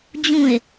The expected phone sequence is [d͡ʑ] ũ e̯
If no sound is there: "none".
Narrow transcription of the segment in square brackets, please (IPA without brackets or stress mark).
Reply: d͡ʑ